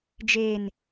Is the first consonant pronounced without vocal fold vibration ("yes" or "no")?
no